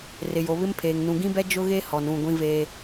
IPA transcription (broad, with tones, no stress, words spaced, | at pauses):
rɪ˨jo˨βɪ˦mpʰeː˨ŋ nũ˨ɡĩ˦bɛ˦ d͡ʒʊ˦ɣe˦hɔ˨n ũ˦˨ɡʷĩ˦ veː˦